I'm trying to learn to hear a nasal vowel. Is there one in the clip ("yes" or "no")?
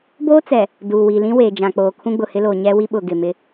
yes